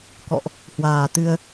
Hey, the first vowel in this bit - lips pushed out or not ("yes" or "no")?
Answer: yes